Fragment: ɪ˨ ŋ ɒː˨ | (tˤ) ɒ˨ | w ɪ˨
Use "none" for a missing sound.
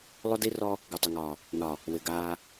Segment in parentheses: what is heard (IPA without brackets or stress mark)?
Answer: n